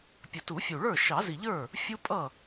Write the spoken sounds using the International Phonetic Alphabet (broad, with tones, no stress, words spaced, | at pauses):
pʲə˨˩tu˨˩˦fʲu˨˩ ɭə˞˥˩ ʃɑ˨˩˦zi˨˩ʎə˞˥˩ | fʲu˦pʼʌ˥˩